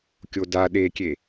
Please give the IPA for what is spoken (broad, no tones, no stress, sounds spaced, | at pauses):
kʲ o d a ɗ e kʲ e